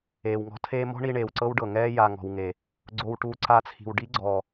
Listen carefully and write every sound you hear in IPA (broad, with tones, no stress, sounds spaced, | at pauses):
eː˨ w ŋ ɔ̤˧ tʰ eː˦ m ɔ̤˦ ɳ i˧ ɳ eː˨ w ǀ ɤ˦ w ɖ ɤ˨ ŋ ɛː˦ j a˨ ŋ ɔ̤˨ w ŋ e˨ | ɡ͡ǀ o˧ w ʈ u˧ ǀ a˧ t͡sʰ i̤˨ w ɖ i˦ ɡ͡ǀ ɔː˨